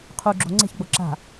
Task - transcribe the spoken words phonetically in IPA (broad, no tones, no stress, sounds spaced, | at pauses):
qʰ u ɡ͡ǁ o̤ ŋ͡ǀ e̤ ç ɡ͡b o ǁ a̤